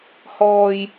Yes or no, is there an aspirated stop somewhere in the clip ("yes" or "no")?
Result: no